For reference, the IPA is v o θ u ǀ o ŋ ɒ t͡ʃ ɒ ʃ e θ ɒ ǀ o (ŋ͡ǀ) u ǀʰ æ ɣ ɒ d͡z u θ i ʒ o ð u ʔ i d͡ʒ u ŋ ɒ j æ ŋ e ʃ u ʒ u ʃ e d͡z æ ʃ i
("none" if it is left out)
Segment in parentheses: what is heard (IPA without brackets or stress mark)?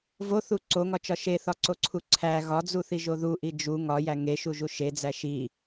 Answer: ǀʰ